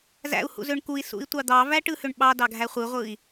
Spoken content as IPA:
zæ̰u̯hṵzøɳ kui̯ sṵi̯tʷɑd̪ɑvæ ʈɯhøɳɓɑ dɑɡʱæχʷɯʁʷɯːi̯

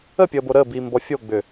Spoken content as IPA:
əpʲəːbo ɾəːbiːmbɔ fʲoɡ͡bʏ

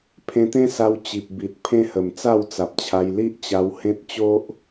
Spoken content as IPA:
pʰẽ˧t̪ẽ˦sa˧w t͡ɕi˨p̚ bi˨t̚ pʰẽ˦ hə˨˩mt͡sa˥˧wt͡sa˨p̚t͡ɕʰa˧j li˦ʔ t͡ɕa˧whẽ˦t̚ t͡ɕo˦ʔ

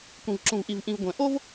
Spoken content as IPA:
kʷĩ˨vǁũ˨vʔi˨vʔĩ˨v ɡʷɛ̃˨ ʔo˦v

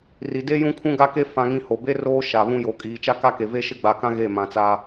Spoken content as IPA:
ri˨de˦ jũ˦kʰũ˦ɡa˦ke˦ fã˦ŋĩ˦ ho˨be˦roː˦ ʃa˨βũ˦jo˨ kʼiː˨t͡ʃa˦ka˦ke˨ ve˦ʃɪ˦ɡ͡ba˨kã˦ ɣe˦˨ mã˨t͡sa˦

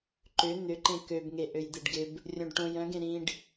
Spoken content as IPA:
ǃʏ n̪ʏǃẽ købŋe ʔøjd̪eɖɡɪb | rʲõɖʈõj œ̃ɡẽ ɾĩɖ

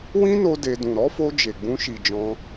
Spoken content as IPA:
wĩ˦no˧ de˧ dũ˨ɾɔ˨˦fo˧ d͡ʒe˨ɡ͡bũ˧ʃi˨ d͡ʒɔ̃˧

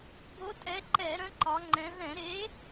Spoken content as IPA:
bo˨˥tʼɛ˨˥ǃɛ˧˩˧ɾə̃˨˥ ǃɒ˨˥ŋ͡ǃɛ̃˨˥ ðɛ̃˧˩˧ɾe˨˥

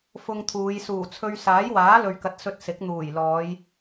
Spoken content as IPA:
fʊ˧ŋt̪ʰuː˨˧j suː˨˩t͡sʰɵ˧ɥ saː˨˥jwaː˨˥lɵ˨ɥkɐ˨t̚ sɵ˧t̚sɪ˨˥k̚ n̪uː˨˩j lɔː˨˧j

